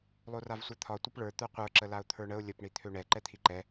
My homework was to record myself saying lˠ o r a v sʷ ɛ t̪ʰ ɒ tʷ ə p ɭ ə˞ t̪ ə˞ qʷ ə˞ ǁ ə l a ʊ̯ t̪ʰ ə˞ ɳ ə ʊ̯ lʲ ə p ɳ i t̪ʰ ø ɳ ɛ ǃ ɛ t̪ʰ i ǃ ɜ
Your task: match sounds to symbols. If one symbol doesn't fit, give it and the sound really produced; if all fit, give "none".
ɜ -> ɛ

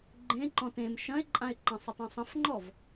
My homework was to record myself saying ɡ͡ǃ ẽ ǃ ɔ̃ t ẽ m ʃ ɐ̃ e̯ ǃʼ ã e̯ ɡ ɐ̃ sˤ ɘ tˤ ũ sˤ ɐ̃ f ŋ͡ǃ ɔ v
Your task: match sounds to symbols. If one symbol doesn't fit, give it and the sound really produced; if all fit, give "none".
ɡ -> ǃ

